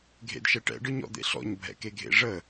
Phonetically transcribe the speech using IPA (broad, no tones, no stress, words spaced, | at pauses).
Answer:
ɡʱḛdʃɛʈɛ̰ ɖɯɲɔ̰d̪ḛɬɔ̰ɲ bʱɛ̰keɡʱḛʐə